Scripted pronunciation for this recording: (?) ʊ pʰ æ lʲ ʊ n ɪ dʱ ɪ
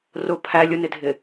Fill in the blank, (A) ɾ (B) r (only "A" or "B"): B